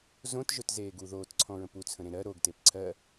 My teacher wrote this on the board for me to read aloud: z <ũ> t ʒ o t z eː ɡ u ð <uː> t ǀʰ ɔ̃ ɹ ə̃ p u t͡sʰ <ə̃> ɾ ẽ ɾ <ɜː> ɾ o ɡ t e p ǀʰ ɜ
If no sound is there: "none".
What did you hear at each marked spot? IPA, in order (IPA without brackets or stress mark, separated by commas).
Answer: õ, oː, ə̃, ɜ